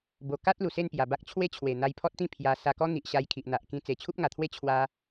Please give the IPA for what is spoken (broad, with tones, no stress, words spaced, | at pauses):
bo˧ ka˦t̚ lu˨˩se˥˧npja˨˩ba˦k̚ t͡ɕʰwe˥˧t͡ɕʰwe˨˩ n̪a˧jpʰɔ˦t̚t̪ĩ˥˧ pʰja˧ sa˧kɔ˦ n̪i˨ʔɕa˧jkʰi˨ʔ n̪a˨ʔ kĩ˧ t͡se˨˩t͡ɕʰu˦p̚ŋa˨˩t̪ʰwe˥˧ t͡ɕʰwa˧